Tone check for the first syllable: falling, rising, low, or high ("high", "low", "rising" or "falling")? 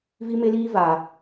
high